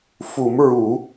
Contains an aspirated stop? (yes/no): no